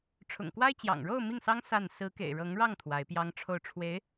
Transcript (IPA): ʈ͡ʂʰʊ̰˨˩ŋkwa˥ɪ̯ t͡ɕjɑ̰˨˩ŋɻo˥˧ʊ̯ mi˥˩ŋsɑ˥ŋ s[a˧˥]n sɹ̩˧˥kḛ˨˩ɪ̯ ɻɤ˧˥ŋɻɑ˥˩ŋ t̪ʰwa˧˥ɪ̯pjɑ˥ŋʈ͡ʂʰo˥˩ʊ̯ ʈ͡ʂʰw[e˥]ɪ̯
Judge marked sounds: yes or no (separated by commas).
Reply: no, no